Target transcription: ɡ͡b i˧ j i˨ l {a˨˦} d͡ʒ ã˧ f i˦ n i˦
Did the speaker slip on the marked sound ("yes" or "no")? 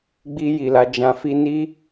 no